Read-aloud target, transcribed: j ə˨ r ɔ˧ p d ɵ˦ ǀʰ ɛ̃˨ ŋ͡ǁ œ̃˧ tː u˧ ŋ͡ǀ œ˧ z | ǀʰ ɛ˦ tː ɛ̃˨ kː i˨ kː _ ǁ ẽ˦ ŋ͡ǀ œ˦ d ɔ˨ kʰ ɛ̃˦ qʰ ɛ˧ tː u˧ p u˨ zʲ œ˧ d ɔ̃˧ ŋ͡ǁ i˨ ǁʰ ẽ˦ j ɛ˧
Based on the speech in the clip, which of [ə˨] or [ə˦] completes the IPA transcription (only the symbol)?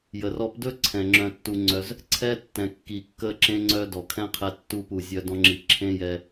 ə˦